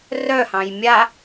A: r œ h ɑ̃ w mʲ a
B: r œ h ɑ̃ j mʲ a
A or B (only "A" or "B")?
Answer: B